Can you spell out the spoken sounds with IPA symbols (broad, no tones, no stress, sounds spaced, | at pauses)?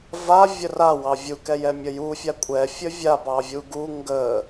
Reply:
v a vʲ ə r a w ɑ vʲ u k ɛ j ɛ mʲ ə j u fʲ a kʷʼ ɛ fʲ ə vʲ a b ɑ vʲ u ɡ u ŋ ɡ ə